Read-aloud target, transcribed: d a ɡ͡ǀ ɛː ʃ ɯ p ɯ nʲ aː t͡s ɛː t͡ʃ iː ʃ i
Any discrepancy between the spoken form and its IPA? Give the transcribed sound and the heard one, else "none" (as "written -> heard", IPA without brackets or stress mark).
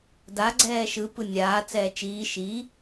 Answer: none